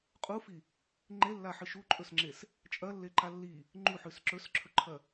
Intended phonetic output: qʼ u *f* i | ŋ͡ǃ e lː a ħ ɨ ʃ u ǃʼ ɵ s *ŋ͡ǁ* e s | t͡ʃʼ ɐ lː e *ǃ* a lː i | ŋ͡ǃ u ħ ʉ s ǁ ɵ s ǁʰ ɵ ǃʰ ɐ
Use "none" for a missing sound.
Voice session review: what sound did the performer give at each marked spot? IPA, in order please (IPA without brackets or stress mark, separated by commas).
f, ŋ͡ǁ, ǃ